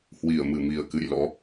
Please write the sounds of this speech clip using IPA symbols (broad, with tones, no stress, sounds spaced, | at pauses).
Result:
h w i˧˩ ə̯ m ɨ˧˩ m i˨˩ ə̯ k ɨ̰˧˨ j l ɔ̰˧˥